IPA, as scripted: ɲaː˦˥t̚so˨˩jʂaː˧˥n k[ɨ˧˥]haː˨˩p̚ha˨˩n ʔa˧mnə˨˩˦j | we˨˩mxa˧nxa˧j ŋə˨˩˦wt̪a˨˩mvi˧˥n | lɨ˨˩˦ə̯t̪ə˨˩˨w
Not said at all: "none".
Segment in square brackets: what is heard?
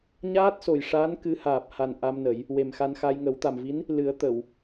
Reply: ɨ˧˥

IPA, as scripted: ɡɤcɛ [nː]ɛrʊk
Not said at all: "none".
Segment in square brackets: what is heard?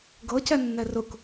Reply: nː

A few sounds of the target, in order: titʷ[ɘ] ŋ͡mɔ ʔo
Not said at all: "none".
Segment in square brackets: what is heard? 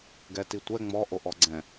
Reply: ɛ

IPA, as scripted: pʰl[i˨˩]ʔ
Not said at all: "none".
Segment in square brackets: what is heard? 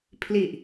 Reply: i˨˩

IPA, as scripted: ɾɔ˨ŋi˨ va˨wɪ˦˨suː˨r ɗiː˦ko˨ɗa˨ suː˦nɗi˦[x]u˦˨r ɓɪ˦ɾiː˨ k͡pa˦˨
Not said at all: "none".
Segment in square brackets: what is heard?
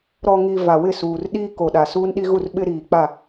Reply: ɣ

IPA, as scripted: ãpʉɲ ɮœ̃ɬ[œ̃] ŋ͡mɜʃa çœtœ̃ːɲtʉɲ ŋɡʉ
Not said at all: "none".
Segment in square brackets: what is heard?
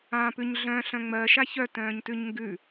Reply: œ̃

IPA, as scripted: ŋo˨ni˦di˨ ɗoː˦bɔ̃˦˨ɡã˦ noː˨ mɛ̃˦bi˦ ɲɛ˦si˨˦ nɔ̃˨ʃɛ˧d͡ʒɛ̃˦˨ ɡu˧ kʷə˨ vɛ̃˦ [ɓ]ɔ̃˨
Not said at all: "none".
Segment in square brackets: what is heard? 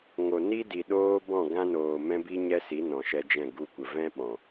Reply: ɓ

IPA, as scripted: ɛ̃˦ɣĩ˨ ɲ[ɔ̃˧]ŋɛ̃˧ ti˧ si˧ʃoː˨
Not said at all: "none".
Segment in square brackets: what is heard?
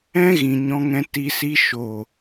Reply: ɔ̃˧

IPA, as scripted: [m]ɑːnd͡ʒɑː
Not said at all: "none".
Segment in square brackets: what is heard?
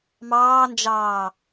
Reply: m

